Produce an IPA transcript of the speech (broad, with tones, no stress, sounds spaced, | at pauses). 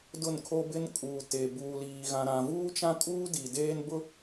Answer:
d ʊ˦˨ n kʰ o˦ b ɪ˦ n kʼ uː˨ t e˨ b uː˨ l iː˨ ɣ ã˨ ɾ ã˨ v uː˦ t͡ʃ ã˦ kʼ uː˦ d i˨ d eː˦ n b ʊ˦